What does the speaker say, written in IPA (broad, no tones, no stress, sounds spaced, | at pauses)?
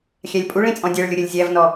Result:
xʲ æ lʲ pʼ u ɭ ĩ t͡sʼ ɔ̃ dʲ ɜ ɭ lʲ ʊ ɾʲ ə lʲ zʲ æ v n ɔ